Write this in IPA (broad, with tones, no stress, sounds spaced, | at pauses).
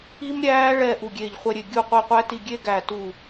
i˦˥ m ɾʲ æː˦˥ ɭ ɛː˦˨ ʔ u˦˨ ɡʲ eː˦˨ ʎ χʷ ɛ˦˥ ɾʲ e˦˨ ɡʲ u˦˨ qʷ i˦˨ qʷ æ˦˥ t i˦˨ ɡʲ e˦˥ ɡ æ˦˨ t u˦˨